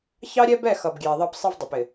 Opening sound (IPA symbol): ç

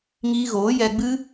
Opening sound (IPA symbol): ŋ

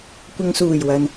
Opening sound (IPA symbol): kʷ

